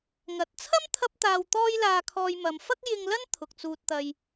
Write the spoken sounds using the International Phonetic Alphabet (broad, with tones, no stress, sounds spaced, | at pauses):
ŋ ɐ˨ t̚ t͡sʰ ɐ˥ m t̪ʰ ɐ˧ p̚ t̪ aː˨ w t̪ ɔː˥ j l aː˧ kʰ ɔː˧ j m ɐ˨˧ m f ɐ˥ k̚ j ɪ˧ ŋ l ɐ˥ n t̪ʰ ʊ˨ k̚ t͡s uː˧ t̚ t̪ ɐ˧ j